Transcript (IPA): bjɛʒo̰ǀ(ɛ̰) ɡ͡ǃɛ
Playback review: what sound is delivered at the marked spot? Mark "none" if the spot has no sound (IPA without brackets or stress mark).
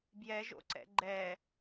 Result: ɛ̰